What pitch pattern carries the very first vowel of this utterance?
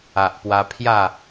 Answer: low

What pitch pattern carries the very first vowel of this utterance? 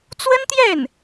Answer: high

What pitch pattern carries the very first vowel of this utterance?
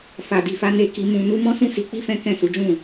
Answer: low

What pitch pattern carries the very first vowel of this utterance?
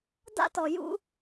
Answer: high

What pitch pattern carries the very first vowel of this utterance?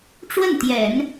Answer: falling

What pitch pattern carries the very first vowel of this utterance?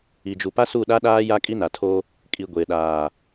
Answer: low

